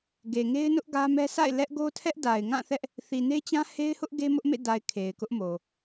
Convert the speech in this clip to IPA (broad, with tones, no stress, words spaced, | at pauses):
ɡe˨ŋe˦ɪ̯nʊ˦ʔ ɡä˦mɛ˦ sʰa̰˦˨ɪ̯ lɛ˦ʔ ɡo˦tʰɛ˦ʔda˨ɪ̯ ŋã˦˨θɛ˦ʔ | θi˨ne˦t͡ɕã˦ he˦ɪ̯hʊ˦ʔ ɡe˦mʊ˦ʔmḛ˦˨da˨ɪ̯ kʰe˨ɪ̯kʊ˦ʔmo˨